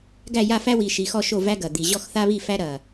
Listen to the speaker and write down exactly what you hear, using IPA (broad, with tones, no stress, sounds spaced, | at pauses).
ɡ æ˦˨ j a˦˨ f æ˦ w i˨˩ ʃ i˨˩ x ɔ˦˨ ʃ o˦˨ v æ˦ ɡ ɐ˨˩ d̪ i˨˩ ʑ ɔ˦˨ x θ a˦ β i˦˨ f æ˦ ɾ ɐ˨˩